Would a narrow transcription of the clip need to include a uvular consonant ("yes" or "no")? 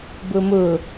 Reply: no